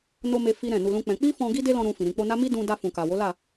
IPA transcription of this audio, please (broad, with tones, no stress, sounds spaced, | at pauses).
n o˧ m e˧ f i˦ ɾ ɛ̃˦˨ n u˧ l ũ˦ k͡p ɛ̃˧ k͡p i˦ f ɔ̃˧ ɡ i˦ d e˦ l ɔ̃˧ ɾ ũ˧ f ĩ˨ ɾ ĩ˨ k͡p o˧ n a˦ m i˦ d ũ˧ d a˧ f ũ˨ k a˨ w o˨˦ l a˦˨